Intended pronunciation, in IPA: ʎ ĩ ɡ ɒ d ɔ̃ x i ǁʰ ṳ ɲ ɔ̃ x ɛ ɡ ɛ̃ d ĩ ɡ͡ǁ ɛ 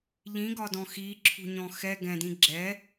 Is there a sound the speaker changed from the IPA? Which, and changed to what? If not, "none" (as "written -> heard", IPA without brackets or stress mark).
none